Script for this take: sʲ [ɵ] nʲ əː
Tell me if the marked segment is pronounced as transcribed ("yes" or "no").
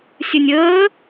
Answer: yes